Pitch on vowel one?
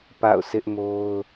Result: falling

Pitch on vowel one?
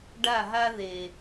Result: falling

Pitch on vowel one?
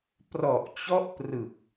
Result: low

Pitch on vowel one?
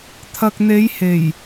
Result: low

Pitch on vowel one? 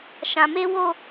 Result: low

